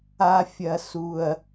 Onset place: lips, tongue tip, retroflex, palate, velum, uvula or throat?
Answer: lips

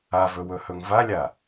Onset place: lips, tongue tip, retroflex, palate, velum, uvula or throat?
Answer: lips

